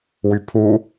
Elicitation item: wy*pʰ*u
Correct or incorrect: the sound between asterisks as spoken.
correct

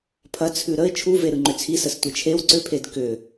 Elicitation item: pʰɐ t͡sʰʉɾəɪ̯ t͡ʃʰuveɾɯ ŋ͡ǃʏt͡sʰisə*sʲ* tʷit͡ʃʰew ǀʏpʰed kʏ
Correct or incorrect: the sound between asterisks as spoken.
incorrect: s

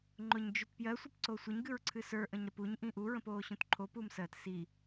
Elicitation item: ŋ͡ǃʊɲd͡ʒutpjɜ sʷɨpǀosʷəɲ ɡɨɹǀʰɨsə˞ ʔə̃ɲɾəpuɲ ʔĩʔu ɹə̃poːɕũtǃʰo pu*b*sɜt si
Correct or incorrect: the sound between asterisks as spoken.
incorrect: m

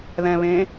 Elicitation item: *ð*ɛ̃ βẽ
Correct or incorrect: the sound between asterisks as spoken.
correct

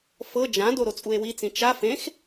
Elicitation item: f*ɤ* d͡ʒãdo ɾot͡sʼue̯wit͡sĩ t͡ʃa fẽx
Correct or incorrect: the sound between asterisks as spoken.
correct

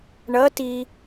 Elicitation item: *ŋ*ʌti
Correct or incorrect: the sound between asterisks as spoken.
incorrect: ɳ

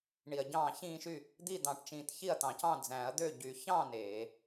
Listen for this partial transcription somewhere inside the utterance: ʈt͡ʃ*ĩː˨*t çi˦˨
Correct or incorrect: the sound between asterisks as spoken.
correct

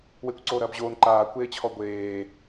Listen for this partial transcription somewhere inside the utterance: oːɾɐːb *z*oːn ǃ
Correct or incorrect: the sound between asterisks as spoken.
incorrect: ʑ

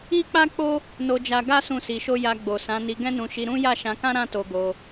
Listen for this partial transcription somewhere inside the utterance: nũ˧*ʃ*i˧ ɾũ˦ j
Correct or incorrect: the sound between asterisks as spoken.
correct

